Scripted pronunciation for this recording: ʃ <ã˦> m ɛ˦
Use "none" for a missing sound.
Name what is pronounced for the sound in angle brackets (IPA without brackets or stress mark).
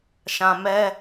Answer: ã˨